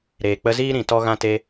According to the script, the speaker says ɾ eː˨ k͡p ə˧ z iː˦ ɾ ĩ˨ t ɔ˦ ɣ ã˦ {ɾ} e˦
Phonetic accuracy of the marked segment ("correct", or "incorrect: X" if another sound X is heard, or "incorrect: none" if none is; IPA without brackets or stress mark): incorrect: t